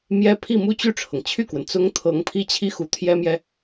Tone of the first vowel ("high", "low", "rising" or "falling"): high